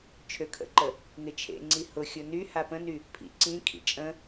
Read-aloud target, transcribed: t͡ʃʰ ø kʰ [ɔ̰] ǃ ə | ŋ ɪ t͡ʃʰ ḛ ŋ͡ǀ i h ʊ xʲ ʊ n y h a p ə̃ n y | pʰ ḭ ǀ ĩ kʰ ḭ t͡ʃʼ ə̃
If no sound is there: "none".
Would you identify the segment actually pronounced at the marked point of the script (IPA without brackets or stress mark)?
ə̰